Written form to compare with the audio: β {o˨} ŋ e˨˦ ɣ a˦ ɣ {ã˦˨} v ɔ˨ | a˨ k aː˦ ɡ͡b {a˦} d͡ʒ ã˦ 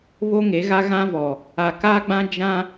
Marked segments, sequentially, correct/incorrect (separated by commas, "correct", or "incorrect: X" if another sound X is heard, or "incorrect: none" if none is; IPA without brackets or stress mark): incorrect: o˦, incorrect: ã˦, incorrect: ã˦